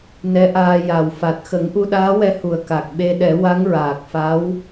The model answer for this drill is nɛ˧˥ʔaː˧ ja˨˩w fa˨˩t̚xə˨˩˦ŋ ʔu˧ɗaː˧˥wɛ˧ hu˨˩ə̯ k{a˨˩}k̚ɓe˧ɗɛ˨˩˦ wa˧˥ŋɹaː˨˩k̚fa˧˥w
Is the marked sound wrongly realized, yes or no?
no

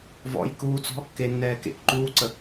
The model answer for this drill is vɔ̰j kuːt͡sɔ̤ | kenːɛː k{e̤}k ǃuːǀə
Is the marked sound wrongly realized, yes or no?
yes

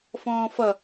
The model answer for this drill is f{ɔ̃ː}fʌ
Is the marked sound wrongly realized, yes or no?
no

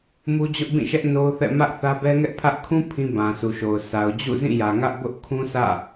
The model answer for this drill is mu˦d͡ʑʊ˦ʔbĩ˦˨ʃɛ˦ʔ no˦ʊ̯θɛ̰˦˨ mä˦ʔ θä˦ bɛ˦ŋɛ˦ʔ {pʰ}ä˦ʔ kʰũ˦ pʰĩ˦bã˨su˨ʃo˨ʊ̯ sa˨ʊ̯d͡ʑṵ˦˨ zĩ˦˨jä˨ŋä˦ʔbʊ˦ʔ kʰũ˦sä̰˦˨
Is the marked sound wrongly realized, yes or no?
no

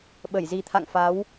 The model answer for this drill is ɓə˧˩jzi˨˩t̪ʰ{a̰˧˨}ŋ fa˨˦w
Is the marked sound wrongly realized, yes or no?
no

